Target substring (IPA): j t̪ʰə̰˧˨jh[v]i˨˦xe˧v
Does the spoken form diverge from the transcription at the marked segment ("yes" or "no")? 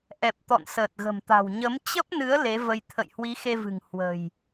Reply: yes